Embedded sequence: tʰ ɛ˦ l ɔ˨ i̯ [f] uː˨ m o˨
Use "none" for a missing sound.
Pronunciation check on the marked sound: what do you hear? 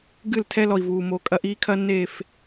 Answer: v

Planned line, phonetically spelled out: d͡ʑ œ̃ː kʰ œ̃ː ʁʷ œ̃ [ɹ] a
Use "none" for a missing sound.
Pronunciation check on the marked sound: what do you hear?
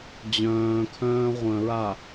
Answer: ɹ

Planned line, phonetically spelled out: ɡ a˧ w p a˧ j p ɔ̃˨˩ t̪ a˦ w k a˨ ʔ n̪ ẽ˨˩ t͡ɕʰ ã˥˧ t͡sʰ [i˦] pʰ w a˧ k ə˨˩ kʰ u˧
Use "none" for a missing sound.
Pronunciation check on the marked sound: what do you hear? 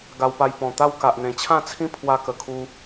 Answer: ĩ˦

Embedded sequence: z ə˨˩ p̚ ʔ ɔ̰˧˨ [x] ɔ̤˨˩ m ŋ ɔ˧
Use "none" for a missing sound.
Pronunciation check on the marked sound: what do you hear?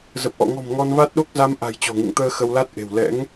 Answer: ŋ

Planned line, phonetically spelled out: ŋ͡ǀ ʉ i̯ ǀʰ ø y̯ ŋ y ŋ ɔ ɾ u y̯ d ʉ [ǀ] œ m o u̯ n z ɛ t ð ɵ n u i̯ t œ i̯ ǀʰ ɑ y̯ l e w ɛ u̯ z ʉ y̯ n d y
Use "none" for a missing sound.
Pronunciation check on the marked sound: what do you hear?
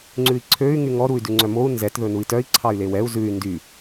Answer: ŋ͡ǀ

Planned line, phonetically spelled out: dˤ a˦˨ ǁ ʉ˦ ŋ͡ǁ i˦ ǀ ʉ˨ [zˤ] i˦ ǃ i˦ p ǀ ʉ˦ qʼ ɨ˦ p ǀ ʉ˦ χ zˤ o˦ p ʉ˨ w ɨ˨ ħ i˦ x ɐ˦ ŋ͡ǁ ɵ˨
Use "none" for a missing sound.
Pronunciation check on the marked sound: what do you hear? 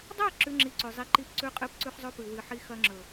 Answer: zˤ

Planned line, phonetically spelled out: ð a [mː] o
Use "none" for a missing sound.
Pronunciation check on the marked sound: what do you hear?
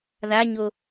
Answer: ɲ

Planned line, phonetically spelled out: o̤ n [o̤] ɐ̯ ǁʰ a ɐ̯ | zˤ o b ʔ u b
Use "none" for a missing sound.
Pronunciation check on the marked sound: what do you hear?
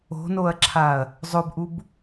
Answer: o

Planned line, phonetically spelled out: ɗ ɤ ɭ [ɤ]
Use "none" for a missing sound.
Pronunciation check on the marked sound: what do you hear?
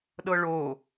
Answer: o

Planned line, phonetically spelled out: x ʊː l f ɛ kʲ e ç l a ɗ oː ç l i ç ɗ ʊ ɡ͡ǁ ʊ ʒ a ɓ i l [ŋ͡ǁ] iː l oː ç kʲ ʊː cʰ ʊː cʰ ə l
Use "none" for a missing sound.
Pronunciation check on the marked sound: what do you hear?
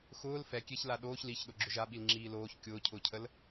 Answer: ŋ͡ǁ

